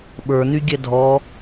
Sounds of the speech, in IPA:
ɓə˞nyɡʲɛ dʱɔ

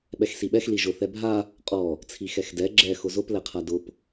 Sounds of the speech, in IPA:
ɓɛxsiɓɛx liʒʊ θɛbʱa | qʼɔ | t͡sʰixɛxdɛ ɡ͡ǁɛ xʊzʊp lɛqʰadʊp

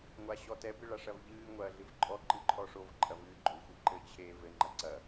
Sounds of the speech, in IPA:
ŋʷaɕɔtɛ bɨɭaʂɐvʎɨː ŋʷɐːɮɨvǃʼɔ ǃɨǃʰɔʂov ǃʼɐvɨːɡ͡ǃo xʷɘǃɘ t͡ɕʰe vɘ ŋ͡ǃɐǀɐ

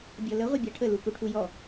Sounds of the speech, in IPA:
bʲɔlə ʁʷibʲaʈʰə lukuʈʰujɔ

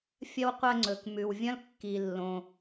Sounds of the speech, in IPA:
fʲɐ˥wqʷɐ˦ŋ͡ǀɵ˩kmʉ˩w vʲɐ̃˥lkːi˩ lːõ˩

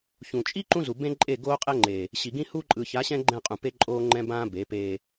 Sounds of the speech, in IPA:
çũ˨t͡ʃʼi˦ ǃũ˦zu˨bẽ˦ ǃʼe˦˨ ɡoː˦qʼɛ˦ŋ͡ǃe˨ | ɕi˨ɡĩ˦hu˦ ǃʼɯ˨ça˨˦ɕɛ̃˦ ɡ͡ǃɛ̃˦˨qʼũ˨pe˦ ǃʼoː˦ŋ͡ǃɛ̃˦bãː˦ be˨˦peː˦

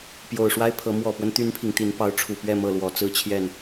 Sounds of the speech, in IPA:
pjo˨˩ʊ̯ʂwa˦ɪ̯pʰɤ˨˦ mwɔ˨˩pwə˦n t̪y˦npʰi˨ŋ t̪i˨˦npɑ˨˦ʊ̯ʈ͡ʂʰu˨˩pɥɛ˥˨ mɤ˥˨lwɔ˨˦t͡sɹ̩˦ t͡ɕʰjɛ˥˨n

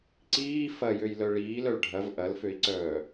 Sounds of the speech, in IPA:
ǀiː fɐjøjlœ ɭiːlœɭ ɖʱɐv ʔɐlføi̯ǀœː

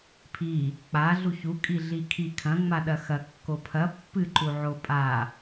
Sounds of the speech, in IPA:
pʰi | k͡pa ɮuçu kʼiɮikʰi kʰɐ̃ ŋ͡maɗɐxɐ kːopʰɐ pːɨ ǃuʕopʼa

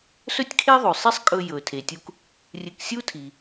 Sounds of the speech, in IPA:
sɵ˥tʲkʰe˥ðˤʉ˩sˤi˥sˤ kʼɵ˧jɵ˩ tʰe˩tʲu˧k | rʲɨ˧k sʲu˥tʰi˩

